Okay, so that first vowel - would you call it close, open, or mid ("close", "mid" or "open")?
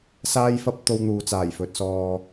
open